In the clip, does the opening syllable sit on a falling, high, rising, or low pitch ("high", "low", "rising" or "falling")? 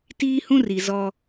high